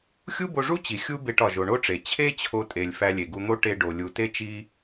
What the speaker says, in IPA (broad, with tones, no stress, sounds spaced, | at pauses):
xʲ u˥ b o˧ ʐ u˥ t͡ɕ i˩ xʲ u˥ b e˧ ʈ ɒ˩ ʒ o˩ ɳ o˥ ʈ͡ʂ e˩ t͡ɕʰ e˥ t͡ɕʰ o˧ tʼ e˩ lʲ f æ˧ lʲ e˩ ɡ u˧ n̪ o˥ ʈ e˧ ɖ o˩ lʲ u˩ t e˥ t͡ʃ i˥